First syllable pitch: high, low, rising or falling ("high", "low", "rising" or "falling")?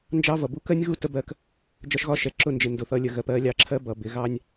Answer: high